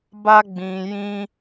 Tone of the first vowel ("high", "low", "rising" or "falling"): high